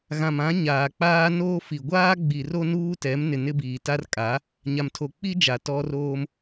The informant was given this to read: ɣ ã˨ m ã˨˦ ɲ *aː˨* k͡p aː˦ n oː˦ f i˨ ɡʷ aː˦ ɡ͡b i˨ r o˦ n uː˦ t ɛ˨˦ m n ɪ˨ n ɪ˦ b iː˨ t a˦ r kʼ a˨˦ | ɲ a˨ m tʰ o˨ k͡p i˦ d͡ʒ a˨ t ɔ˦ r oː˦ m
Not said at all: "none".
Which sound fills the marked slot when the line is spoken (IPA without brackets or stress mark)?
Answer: aː˨